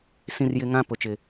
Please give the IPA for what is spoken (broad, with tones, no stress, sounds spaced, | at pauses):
s ĩ˦ r j ɪ˦ ŋ ã˦ p ʊ˨ t͡ʃ ɪ˨